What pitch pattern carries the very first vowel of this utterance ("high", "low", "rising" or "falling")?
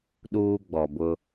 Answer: high